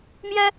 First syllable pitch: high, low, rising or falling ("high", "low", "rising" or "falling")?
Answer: high